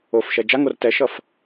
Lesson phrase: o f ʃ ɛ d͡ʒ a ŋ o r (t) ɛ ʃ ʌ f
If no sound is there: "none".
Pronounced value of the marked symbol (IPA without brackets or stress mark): t